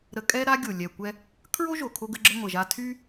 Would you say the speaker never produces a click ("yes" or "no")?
no